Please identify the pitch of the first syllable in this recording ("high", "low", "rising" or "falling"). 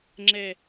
falling